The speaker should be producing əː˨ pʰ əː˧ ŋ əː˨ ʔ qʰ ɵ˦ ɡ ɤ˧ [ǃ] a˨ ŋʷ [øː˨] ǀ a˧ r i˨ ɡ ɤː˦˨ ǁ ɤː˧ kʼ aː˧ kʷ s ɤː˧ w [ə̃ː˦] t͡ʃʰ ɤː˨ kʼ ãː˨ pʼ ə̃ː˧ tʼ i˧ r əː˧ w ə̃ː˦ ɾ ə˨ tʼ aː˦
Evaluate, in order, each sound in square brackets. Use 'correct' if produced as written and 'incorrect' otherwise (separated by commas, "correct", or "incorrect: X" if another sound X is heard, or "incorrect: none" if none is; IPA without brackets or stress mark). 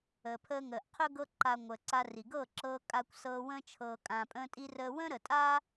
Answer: correct, incorrect: əː˨, incorrect: ə̃ː˧